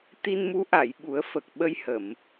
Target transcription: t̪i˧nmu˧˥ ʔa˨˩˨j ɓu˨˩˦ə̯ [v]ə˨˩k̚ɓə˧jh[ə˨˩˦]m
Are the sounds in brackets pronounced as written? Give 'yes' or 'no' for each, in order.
no, no

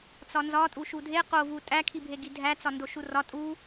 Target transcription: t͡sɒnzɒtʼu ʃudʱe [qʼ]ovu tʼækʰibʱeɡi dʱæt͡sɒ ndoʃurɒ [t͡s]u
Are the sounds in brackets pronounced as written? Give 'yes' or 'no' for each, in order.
no, no

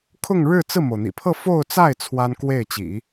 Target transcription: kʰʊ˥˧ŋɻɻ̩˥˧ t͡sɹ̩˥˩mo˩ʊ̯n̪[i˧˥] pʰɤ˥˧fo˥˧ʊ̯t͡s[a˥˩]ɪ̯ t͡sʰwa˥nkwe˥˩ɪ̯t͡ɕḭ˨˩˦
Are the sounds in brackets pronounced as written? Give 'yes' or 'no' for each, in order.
no, yes

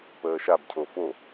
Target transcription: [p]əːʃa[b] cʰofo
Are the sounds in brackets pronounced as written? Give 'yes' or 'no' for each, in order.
yes, yes

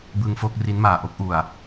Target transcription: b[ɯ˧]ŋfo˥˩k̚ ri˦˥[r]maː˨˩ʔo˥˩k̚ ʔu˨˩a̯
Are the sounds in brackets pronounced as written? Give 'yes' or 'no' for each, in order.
yes, no

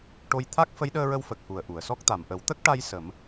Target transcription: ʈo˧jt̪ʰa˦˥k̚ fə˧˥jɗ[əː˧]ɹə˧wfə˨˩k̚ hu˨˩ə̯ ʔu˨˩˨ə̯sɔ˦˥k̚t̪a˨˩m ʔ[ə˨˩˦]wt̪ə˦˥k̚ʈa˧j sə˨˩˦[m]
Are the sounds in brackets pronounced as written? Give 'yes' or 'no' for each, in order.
yes, yes, yes

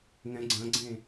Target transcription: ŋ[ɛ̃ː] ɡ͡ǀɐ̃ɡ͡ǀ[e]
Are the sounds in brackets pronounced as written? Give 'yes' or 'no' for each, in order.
no, no

